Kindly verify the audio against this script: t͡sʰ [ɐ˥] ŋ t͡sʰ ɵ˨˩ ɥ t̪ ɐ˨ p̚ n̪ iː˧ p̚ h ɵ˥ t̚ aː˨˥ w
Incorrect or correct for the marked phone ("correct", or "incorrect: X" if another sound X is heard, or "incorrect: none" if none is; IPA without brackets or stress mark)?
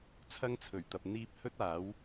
correct